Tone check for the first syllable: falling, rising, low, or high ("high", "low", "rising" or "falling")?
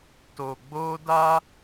low